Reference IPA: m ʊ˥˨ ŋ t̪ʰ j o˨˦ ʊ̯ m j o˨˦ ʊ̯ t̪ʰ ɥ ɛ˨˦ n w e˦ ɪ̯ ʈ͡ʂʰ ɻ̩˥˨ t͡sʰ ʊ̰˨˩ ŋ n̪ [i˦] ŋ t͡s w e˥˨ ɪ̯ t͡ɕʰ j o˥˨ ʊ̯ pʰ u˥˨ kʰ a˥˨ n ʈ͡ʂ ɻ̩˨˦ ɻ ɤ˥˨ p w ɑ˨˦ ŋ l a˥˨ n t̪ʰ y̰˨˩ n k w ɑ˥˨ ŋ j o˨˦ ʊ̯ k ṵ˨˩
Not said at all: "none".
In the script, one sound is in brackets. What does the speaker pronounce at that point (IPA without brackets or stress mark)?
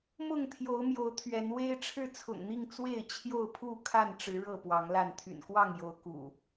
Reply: i˥˨